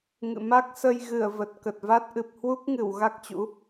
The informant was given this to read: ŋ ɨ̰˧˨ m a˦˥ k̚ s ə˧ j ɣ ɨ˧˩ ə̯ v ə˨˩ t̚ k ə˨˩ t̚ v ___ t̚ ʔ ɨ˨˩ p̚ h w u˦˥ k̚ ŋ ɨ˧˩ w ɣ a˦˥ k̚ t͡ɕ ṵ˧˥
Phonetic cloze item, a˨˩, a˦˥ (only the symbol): a˦˥